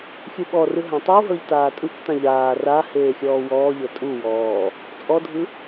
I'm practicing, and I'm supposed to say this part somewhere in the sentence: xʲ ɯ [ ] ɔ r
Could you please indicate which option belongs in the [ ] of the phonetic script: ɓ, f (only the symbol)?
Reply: ɓ